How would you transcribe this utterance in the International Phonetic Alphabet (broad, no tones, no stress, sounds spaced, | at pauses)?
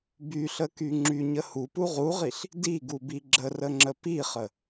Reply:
b y ɬ ə k y ŋ͡ǁ y ɲ ə h u p u ʁ u ʁ i ɬ | d i ɡ u b i ɡ͡ǁ ə r ə ŋ͡ǁ ə p i χ ə